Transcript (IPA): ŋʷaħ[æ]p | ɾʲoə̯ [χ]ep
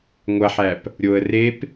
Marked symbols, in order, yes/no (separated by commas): yes, no